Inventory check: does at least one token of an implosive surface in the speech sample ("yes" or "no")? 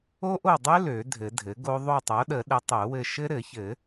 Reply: yes